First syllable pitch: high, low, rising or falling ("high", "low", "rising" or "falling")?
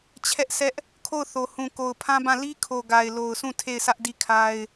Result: high